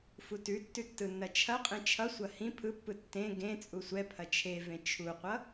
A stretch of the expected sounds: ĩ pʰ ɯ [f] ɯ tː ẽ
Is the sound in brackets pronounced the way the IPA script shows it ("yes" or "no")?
no